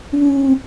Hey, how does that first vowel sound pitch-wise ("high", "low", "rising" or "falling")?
high